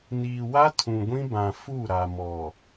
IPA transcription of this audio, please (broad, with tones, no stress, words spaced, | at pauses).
niː˨wa˦ tʰũ˨ɡʷĩ˦bã˨ fu˦˨ɾa˨mɔ˨